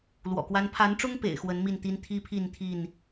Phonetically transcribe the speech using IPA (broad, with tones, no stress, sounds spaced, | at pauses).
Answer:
l w ɔ̰˨˩ k w a˦ n pʰ a˨˦ n ʈ͡ʂ ʊ˦ ŋ p ḛ˨˩ ɪ̯ x w ə˨˦ n m i˥˨ n t̪ i˦ n t̪ʰ i˦ pʰ i˥˨ n t̪ʰ i˥˨ n